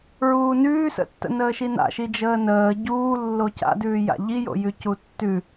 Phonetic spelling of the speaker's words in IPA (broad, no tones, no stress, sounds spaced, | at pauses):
ɹ uː n ʉː s ə̰ tː ə̰ n əː ʃ i n a̰ ʃ i d͡ʒ əː n əː ɟ uː lː o c a̰ d ʉː j a̰ ʎ i j o̰ j ʉ c u tː ʉ